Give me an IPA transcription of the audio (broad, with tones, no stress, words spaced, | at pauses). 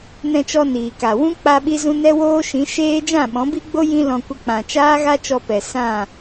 nɛ̃˧t͡ʃɔ˧ niː˨ka˨ wũ˦ k͡pa˦ɓi˦zũ˦ nɛ˦woː˦ʃĩ˨˦ ʃeː˦ d͡ʒã˦˨ɓɔ̃˨˦bi˦ɡ͡bo˦ jĩ˦lɔ̃˧ kʷə˧k͡pã˨t͡ʃaː˦ ɣa˦t͡ʃɔ˧pɛ˨ sã˦˨